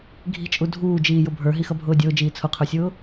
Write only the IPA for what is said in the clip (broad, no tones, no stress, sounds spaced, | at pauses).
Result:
ɡʱ i̤ t͡ʃʼ u dʱ uː d͡ʒ iː j ʊ bʱ ə˞ ɦ i x ʌ bʱ ʊː dʲ ʊː d͡ʒ iː t͡sʰ ʊ qʰ ə˞ sʲ ʊː